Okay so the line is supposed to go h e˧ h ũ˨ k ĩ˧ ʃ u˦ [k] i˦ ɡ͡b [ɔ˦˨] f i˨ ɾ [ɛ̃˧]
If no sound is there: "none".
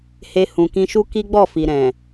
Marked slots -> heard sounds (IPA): k, ɔ˦˨, ɛ̃˨

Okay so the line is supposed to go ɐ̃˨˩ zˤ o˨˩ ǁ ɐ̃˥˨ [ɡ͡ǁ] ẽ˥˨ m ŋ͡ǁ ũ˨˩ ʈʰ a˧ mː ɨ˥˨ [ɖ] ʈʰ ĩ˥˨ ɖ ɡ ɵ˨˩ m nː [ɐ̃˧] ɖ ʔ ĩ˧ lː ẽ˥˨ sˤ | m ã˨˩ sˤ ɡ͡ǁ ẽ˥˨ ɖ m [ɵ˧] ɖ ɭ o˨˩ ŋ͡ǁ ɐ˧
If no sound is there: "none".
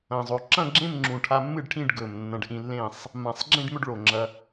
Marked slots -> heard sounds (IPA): ɡ͡ǁ, ɖ, ɐ̃˧, ɵ˥˨

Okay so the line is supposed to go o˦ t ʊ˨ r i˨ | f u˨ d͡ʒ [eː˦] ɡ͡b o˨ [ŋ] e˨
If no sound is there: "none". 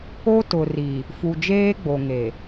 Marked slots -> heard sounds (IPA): eː˦, ŋ

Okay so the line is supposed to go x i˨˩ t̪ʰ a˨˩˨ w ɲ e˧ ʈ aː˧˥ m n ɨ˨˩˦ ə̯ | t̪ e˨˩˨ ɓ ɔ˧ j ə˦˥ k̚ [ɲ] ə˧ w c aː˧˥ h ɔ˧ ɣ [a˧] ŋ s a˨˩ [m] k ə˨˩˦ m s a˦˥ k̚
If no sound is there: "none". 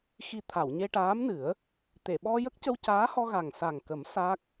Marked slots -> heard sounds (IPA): c, a˨˩, ŋ

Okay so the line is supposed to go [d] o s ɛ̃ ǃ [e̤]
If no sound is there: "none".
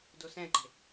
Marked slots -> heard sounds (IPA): d, e̤

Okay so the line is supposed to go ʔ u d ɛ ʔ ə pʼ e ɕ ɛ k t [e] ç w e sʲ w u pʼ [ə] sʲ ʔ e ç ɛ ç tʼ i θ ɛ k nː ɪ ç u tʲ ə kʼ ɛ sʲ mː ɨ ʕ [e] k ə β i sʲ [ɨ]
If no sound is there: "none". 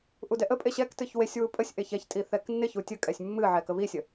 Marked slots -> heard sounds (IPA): ɨ, ə, ɛ, ə

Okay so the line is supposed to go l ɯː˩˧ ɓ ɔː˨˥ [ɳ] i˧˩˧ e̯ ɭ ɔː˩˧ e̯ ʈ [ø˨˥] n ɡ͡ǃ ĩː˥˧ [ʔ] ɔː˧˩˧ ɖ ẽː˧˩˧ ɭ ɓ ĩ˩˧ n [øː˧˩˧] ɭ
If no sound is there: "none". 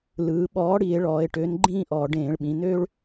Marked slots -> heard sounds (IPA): ɽ, ø˨˥, ʔ, øː˥

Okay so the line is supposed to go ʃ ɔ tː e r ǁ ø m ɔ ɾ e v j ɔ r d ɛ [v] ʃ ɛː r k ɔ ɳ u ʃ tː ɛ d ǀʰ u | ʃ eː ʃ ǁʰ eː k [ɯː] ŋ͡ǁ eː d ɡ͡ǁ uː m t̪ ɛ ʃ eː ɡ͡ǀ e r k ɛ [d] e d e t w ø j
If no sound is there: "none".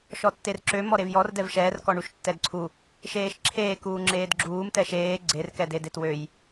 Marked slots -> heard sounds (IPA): v, uː, d

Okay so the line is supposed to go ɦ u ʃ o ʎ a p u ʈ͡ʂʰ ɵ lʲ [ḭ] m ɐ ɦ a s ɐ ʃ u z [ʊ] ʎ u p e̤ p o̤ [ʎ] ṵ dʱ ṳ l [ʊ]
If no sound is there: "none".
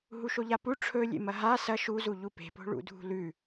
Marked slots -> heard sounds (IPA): ḛ, u, ɭ, ʉ

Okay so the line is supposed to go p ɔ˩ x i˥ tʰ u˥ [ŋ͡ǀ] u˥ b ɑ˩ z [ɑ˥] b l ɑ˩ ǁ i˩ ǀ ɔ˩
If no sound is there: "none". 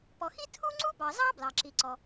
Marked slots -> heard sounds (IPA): ŋ͡ǀ, ɑ˥

